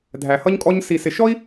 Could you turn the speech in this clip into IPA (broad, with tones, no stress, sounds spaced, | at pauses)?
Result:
dʱ æ˧ h ʌ˥ ɲ kʼ ɔ˥ ɲ s i˧ s ɪ˧ ʃ ɔ˥ i̯